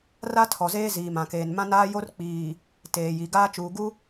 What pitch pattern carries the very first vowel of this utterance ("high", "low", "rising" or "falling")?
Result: high